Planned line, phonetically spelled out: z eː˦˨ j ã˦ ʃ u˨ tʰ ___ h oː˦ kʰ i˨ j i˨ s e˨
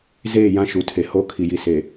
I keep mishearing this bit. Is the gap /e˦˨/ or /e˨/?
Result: e˨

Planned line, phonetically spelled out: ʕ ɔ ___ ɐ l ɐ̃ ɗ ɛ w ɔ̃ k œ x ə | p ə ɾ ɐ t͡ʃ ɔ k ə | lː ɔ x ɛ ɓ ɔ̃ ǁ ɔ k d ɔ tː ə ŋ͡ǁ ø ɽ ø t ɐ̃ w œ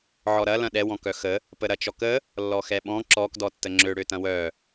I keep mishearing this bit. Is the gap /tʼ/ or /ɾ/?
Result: ɾ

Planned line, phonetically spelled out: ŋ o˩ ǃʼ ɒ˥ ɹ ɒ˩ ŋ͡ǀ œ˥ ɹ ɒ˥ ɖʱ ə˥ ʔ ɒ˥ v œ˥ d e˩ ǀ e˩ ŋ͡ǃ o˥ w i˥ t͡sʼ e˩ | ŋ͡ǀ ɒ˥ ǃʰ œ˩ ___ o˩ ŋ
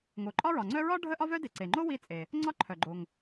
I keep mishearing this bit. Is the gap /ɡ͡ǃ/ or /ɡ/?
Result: ɡ͡ǃ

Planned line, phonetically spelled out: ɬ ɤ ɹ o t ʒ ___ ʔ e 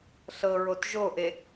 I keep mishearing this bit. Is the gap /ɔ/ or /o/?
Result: o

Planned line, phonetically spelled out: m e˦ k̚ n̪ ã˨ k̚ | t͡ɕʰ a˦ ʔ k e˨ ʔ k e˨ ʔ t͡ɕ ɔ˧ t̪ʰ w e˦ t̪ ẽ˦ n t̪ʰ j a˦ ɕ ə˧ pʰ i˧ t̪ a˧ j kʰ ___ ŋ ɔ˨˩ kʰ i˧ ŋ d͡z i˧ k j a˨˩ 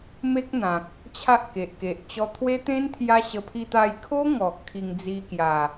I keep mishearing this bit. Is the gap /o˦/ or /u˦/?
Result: o˦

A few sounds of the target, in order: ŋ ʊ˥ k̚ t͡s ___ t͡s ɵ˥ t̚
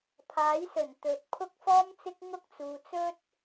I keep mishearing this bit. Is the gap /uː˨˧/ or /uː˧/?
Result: uː˨˧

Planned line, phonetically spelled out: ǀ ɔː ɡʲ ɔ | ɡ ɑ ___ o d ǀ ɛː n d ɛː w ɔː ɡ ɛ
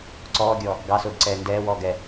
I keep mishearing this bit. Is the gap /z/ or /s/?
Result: s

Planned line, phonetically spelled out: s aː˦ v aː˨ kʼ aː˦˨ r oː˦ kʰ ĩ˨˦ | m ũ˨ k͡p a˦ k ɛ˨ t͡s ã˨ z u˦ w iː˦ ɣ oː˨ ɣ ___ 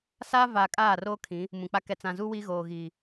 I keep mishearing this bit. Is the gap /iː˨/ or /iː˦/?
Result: iː˨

